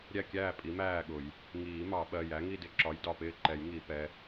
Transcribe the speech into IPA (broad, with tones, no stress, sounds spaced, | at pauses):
ɾʲ æ˥˨ kʲ æː˥˨ pʼ i˨˥ m æː˥˨ ɠ ʊ˨˩˦ j | ŋ iː˨˩˦ m ɑ˨˩˦ ɓ ɜ˩˧˩ j æ˨˥ ŋ i˥˨ d ɪ˥˨ ǁ ɒ˨˥ j d ɒ˩˧˩ p ɪː˥˨ ǃ ɛ˨˩˦ j ŋ i˨˩˦ p ɛ˩˧˩